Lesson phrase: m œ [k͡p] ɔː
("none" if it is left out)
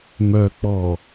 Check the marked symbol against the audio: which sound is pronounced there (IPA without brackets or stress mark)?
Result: k͡p